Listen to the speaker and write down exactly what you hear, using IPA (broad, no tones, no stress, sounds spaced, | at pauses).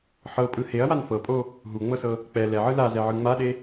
ħ ɤ pʼ ɯ h e ɐ̯ w a n f ɤ pʼ o | ɦ u ŋ͡m ɤ s ɤ | k͡p ɛ l ɛ ʕ ɯ l a z ɛ ʕ ɯ ŋ͡m a ɗ e